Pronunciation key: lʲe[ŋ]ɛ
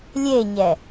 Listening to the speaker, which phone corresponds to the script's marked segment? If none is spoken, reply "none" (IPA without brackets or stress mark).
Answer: ɲ